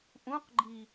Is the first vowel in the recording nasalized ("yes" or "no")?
yes